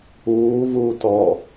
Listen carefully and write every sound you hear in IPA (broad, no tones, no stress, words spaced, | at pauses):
uːvuː tɔ